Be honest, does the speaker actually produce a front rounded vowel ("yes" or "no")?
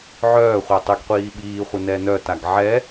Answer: yes